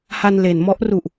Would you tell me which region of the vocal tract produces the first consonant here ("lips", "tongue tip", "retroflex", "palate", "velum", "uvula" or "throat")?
throat